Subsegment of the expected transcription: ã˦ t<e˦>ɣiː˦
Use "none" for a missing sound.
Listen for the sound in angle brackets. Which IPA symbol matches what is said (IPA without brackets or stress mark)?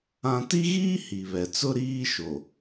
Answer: i˦